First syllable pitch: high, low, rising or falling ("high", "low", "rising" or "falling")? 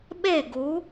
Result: falling